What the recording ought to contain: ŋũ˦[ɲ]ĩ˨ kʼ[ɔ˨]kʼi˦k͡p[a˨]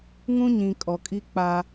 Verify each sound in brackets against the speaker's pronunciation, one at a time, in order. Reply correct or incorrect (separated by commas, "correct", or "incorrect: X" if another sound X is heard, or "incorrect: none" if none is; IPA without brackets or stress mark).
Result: correct, correct, incorrect: a˦